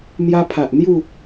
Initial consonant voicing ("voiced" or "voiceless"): voiced